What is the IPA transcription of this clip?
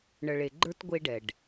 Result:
ɳ ə˨ ɭ e˨ ɡ͡ǃ ə˞˦ t ɡʷ e˦ ɖ ɛ˨ ɖ

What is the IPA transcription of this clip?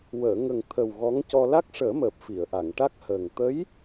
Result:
w əː˨˩˨ ŋ ə˨˩ ŋ t̪ʰ ə˨˩ w ɣ ɔ˧˥ ŋ c ɔ˧ l a˦˥ k̚ ʂ əː˨˩˦ m əː˨˩ p̚ f i˨˩˨ ə̯ ʔ a˨˩˨ ŋ ʈ a˦˥ k̚ h əː˨˩ ŋ t̪ ə˧˥ j

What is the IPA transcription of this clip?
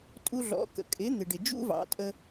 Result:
tʼ u˧ ɮ ɔ̰˩˥ k ə̰˩ kʼ ɪ˩˥ n̪ ɪ˩ ɖ ɪ˩ d͡ʒ ṵ˥ v ɑ̰˩˥ tʼ ə˧

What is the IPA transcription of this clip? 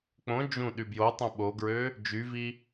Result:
k͡p õ d͡ʒ ũ ɗ y b j o tˤ õ ɓ o ɡ ɹ ø | d͡ʒ y v i

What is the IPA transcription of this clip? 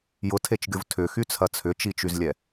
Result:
j ʊ tʰ e t͡ʃ ɡʲ ʊ v tʰ ʏ x y t͡sʰ ɐ t͡sʰ ʏ t͡ʃ i t͡ʃ y z lʲ ɛ

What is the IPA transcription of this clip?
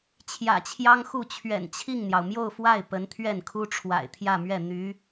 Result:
t͡ɕʰ j ä̰˨˩ t͡ɕʰ j ɑ˥ ŋ x u˥˩ t͡ɕʰ ɥ ɛ̰˨˩ n t͡ɕʰ i˥˩ ŋ n̪ j ɑ˩ ʊ̯ m j o˥˧ ʊ̯ f w a˥˩ ɪ̯ p ə˧˥ n t̪ʰ ɥ ɛ˥˩ n kʰ u˥ ʈ͡ʂʰ w a̰˨˩ ɪ̯ t̪ʰ j ä˥˧ m ɥ ɛ˥˩ n̪ y˧˥

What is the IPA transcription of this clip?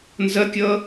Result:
n z ɐ kʲ ʌ

